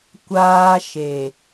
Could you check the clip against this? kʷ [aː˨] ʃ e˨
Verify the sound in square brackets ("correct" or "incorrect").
incorrect